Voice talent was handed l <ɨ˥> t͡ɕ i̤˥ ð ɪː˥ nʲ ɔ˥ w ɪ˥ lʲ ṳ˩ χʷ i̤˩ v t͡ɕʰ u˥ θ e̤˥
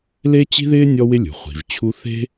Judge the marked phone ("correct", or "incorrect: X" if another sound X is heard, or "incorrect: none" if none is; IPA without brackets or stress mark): incorrect: e˥